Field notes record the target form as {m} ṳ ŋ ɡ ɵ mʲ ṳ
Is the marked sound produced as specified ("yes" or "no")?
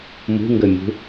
yes